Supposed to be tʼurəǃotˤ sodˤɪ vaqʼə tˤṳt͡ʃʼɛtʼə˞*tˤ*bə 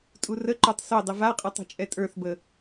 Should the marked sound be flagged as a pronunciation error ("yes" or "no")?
yes